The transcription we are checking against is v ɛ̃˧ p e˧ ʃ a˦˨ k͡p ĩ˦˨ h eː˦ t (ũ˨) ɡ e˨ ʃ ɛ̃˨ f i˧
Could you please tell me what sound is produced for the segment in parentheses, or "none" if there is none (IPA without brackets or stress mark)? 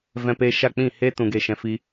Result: ũ˨